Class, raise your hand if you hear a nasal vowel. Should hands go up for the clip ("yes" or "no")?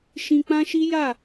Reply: yes